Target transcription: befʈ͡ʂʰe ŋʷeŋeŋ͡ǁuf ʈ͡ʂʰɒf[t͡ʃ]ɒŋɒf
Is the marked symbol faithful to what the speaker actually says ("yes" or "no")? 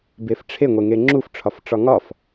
no